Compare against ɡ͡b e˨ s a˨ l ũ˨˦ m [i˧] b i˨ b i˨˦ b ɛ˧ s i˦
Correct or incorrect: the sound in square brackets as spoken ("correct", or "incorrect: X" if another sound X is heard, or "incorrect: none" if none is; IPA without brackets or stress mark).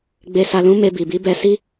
incorrect: e˧